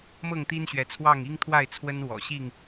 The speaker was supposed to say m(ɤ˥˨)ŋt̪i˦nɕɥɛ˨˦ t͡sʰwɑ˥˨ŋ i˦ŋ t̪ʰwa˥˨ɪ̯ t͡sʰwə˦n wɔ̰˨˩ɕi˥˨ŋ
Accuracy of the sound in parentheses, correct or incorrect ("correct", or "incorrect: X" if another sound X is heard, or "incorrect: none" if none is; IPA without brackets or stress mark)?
correct